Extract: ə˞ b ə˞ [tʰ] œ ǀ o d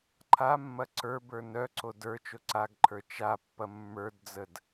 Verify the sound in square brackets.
incorrect: n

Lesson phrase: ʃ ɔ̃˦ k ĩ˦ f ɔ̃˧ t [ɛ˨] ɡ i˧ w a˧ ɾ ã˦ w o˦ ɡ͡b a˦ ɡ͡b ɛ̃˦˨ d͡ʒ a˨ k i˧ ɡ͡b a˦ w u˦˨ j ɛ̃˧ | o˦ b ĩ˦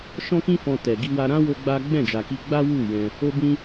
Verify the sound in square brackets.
correct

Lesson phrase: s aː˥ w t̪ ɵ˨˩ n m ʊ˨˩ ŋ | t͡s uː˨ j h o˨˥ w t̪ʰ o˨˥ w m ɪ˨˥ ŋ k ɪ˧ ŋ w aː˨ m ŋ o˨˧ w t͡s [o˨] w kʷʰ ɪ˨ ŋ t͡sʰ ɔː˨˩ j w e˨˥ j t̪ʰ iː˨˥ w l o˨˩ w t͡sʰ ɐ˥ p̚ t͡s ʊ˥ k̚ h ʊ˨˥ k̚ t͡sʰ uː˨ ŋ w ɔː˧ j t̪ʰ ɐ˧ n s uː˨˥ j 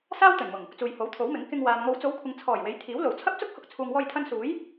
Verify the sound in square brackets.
incorrect: o˨˧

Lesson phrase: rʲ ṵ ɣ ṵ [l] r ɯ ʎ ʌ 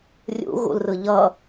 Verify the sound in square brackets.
correct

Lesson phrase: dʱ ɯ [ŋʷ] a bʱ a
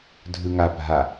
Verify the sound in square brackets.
incorrect: ŋ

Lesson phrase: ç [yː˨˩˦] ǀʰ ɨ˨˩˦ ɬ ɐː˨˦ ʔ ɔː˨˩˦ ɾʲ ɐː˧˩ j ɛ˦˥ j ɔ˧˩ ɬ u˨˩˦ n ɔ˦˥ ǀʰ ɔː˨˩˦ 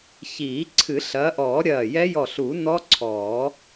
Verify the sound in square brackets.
incorrect: iː˨˩˦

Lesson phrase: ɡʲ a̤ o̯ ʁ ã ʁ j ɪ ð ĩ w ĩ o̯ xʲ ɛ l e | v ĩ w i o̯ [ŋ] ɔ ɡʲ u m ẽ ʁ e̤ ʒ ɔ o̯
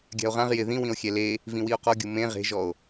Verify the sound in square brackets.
incorrect: q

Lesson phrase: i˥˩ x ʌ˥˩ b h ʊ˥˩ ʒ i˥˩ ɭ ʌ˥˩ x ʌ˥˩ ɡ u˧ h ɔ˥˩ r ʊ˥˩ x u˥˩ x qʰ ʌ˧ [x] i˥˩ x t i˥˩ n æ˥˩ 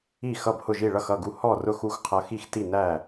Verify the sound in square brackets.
correct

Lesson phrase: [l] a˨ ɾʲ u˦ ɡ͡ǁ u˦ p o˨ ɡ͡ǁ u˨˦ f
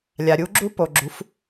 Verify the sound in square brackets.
incorrect: lʲ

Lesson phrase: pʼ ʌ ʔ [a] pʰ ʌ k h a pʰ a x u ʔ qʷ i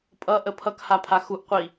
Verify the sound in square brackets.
incorrect: ə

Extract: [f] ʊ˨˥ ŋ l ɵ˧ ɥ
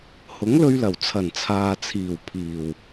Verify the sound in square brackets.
incorrect: h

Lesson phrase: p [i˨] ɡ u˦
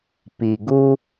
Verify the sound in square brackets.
correct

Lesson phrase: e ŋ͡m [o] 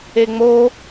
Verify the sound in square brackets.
correct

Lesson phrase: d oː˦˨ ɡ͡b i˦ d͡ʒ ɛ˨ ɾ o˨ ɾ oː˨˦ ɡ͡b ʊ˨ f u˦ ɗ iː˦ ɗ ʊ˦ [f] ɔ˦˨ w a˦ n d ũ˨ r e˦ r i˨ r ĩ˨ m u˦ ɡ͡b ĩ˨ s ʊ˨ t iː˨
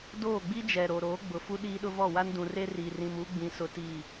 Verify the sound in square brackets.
incorrect: v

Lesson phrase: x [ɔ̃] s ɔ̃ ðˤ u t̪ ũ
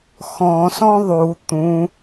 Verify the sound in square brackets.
correct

